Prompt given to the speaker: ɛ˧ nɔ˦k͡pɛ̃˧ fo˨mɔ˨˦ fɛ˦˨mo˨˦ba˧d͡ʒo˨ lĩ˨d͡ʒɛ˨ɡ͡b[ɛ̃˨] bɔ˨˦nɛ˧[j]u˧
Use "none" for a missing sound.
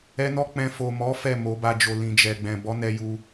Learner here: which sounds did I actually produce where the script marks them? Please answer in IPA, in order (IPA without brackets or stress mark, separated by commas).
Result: ɛ̃˨, j